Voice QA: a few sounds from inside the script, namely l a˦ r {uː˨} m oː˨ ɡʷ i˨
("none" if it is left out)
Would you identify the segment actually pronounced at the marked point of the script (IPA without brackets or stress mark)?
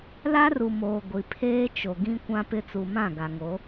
u˨